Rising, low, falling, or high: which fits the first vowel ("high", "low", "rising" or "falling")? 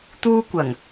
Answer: high